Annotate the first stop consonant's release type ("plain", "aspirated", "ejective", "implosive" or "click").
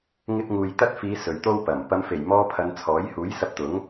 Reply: plain